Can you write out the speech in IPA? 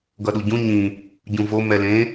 ɡ ʌ ɗ u ɟ ũ ɲ ĩ | ɟ ũ v o m ɛ l ẽ

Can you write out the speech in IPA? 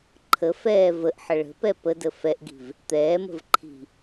ǃʰ ə f ɛː v ə ʔ ħ ə ɭ ə̤ p ɛ p ə d ə f ɛ ʔ ɡ i̤ v | t̪ ɛː m ə̤ v ǃʰ i̤

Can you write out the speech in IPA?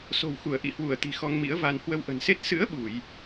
s o̤˨˩ w x u˧˩ ə̯ ʔ ḭ˧˨ h w u˧˩ ə̯ t̪ i̤˨˩ x ɔ˧ ŋ m ḭ˧˥ ə̯ v a˧ n h w ə˧ w ʔ ə̤˨˩ n s e˦˥ t̚ s ɨ̰˧˥ ə̯ ɓ u˧˩˨ j

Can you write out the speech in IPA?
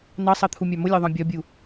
n ɑ sˤ ɑ t̪ʰ u mʲ ɑ m ʊ lʲ ɜ ðˤ ɑ̃ bʲ ɒ bʲ u

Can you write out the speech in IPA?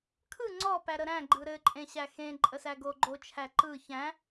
kʰ ɯ ŋ͡ǀ ɔ p æ ɾ ə ɾ æ̃ ɡ͡ǃ ɯ ɾ ɘ ǃʼ ẽ ɕ æ x ẽ ǃʼ ə s æ ɡ o ɡ͡ǃ o t͡ʃʰ æ ǃ ɯ ç æ̃

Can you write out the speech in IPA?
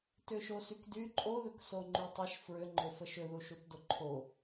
t ʏ ʃ o s y k d y ǃʼ o ð ʏ k s o ŋ͡ǃ y tˤ ə ʃ f ɹ ʏ ŋ͡ǃ ʏ f ə ʃ ʏ ð u ʃ u t d o ǃʰ o

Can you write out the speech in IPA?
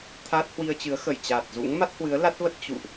t̪ʰ a˦˥ t̚ h w i˧ ə̯ t͡ɕ ɨ˨˦ ə̯ x ə˧˩ j t͡ɕ a˨˩ t̚ z ṵ˧˥ ŋ m a˦˥ t̚ h w ɨ˨˦ ə̯ l a˦˥ t̚ v ə˦˥ t̚ t͡ɕ ṵ˧˨ ʔ

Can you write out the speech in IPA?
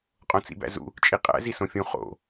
qʼ õ t͡s ḭ b æ̰ z ṵ | t͡ʃʼ i qʼ æ̰ z i s õ fʲ ũ χ o̰

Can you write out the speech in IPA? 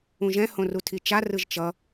ũ ʒ ɛ̃ h õ r u tʰ i t͡ʃ a r ɯ ʒ t͡ʃ ʌ

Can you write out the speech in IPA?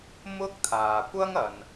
m ʊ˥ k̚ t̪ʰ aː˨ kʷ ɐ˥ ŋ ɐ˨ n

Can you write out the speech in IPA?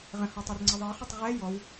ʁ ə̃ h ɔ tˤ o r ŋ͡ǀ ə ðˤ ɛ χ ʊ tˤ ʁ ɛ j ɔ w

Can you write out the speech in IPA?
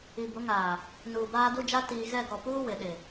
i˨ b ʊ˨˦ ŋ aː˨ | n uː˨ b aː˦ d u˦ d͡ʒ a˦ t iː˨ ɣ ɛ˦˨ ɡ ɔ˨ p uː˦ w ɪ˨ ɗ ɪ˨

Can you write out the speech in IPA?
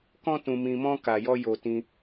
k ɔ̃˦ t ũ˧ m ĩ˧ m ɔ̃˦ k a˧ j ɔ˦ j o˧ t ĩ˧

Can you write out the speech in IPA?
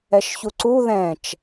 ɛ ʃ ç u ǀ u ð ɛ̃ t͡ʃ

